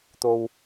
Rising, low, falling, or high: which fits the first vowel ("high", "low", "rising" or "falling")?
low